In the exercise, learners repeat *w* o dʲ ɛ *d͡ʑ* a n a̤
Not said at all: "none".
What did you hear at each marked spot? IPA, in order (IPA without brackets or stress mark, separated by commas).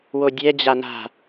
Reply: w, d͡ʑ